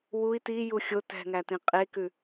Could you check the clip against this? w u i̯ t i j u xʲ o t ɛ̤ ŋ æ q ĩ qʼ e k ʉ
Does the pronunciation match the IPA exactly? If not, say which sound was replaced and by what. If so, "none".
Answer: q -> t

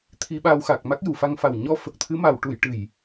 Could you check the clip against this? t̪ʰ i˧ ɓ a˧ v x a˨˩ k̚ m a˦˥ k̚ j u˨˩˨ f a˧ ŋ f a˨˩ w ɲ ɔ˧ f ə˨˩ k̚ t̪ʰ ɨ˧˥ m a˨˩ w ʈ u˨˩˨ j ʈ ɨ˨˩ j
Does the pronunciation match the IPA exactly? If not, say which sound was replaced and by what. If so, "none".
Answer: v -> w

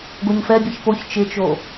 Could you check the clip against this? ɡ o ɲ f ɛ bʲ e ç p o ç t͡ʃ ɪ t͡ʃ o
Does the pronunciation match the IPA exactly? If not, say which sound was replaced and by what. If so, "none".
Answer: none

